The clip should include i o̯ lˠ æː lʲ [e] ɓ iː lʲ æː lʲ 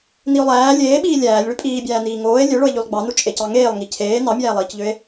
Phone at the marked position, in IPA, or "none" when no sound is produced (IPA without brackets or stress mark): eː